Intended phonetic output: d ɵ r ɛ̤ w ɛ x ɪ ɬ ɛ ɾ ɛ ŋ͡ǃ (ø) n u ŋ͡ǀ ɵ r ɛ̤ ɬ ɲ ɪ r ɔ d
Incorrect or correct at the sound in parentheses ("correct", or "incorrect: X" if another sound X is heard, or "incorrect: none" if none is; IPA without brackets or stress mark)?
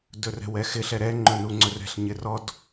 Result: incorrect: ɵ